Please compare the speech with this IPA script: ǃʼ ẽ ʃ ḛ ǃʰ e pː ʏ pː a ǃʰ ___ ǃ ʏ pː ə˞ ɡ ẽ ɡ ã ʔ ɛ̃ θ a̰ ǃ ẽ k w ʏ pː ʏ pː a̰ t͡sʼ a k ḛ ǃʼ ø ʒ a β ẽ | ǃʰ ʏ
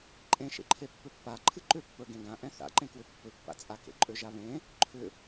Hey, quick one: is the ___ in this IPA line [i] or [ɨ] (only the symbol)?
ɨ